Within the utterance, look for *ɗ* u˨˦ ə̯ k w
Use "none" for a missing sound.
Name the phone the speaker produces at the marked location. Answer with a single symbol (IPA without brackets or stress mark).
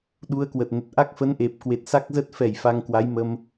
ɗ